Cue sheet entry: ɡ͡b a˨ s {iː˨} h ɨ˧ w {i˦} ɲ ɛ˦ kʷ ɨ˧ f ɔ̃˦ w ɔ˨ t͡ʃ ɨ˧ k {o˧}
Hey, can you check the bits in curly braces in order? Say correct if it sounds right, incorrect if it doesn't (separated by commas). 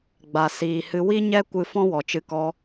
correct, correct, incorrect